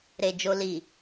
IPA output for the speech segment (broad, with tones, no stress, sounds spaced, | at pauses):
ɾ e˨ d͡ʒ o˧ l i˨